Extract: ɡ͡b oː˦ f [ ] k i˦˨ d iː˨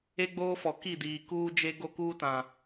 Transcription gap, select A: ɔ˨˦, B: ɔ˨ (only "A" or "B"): B